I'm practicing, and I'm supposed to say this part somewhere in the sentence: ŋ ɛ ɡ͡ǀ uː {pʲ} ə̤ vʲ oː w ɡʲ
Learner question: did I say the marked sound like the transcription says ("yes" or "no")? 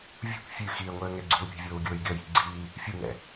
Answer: yes